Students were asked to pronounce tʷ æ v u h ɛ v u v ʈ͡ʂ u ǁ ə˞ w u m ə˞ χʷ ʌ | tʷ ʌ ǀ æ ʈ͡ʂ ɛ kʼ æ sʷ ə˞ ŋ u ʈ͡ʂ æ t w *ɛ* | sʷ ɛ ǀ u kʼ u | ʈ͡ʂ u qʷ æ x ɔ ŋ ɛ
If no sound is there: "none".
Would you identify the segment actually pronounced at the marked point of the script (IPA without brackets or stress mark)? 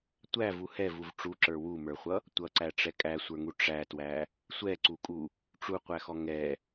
æ